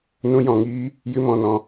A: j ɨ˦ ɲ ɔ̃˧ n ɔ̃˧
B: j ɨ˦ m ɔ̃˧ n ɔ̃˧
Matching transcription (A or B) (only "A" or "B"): B